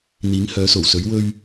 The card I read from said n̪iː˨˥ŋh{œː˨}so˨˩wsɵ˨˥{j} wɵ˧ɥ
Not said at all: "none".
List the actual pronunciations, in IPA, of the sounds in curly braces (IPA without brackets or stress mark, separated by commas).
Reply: œː˨˥, ɥ